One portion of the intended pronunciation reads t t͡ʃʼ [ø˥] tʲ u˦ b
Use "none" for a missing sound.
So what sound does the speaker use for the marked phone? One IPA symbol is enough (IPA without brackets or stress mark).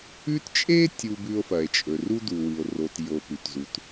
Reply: e˥